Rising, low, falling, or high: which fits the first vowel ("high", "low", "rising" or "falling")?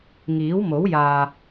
rising